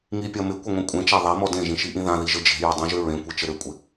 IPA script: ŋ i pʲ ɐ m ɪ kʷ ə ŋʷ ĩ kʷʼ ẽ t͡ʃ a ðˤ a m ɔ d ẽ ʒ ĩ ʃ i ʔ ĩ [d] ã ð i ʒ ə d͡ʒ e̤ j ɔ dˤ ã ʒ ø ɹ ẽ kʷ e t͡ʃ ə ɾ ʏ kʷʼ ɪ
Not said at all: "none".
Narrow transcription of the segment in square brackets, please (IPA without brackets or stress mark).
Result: ð